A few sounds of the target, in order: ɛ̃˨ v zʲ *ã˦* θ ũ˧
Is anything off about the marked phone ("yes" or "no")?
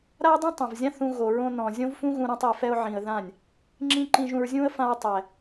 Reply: no